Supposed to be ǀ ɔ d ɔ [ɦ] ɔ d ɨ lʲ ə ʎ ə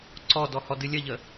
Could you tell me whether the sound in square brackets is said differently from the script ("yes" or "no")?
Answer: yes